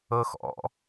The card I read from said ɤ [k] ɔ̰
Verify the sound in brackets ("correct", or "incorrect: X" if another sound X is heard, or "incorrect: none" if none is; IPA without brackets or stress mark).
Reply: incorrect: x